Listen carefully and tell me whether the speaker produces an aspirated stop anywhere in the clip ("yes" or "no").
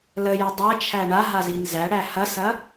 yes